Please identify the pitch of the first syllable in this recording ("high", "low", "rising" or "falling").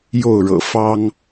falling